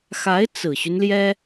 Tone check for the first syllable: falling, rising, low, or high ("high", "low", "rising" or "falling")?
rising